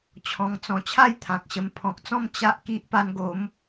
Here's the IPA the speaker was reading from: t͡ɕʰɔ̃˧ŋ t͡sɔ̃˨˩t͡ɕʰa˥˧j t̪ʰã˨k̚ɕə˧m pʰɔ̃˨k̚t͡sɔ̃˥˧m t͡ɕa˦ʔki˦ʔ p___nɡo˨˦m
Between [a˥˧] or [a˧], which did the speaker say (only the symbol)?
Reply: a˧